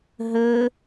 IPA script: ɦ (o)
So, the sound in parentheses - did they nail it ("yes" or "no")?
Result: no